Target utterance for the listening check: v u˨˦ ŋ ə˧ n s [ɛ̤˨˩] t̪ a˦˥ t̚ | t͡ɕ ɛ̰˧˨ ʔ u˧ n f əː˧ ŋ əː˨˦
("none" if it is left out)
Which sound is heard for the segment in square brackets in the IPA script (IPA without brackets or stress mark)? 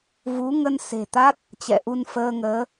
e̤˨˩